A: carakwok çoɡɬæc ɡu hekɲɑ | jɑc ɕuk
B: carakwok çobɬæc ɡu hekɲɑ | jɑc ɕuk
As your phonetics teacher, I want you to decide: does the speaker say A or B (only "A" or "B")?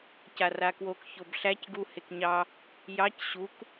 B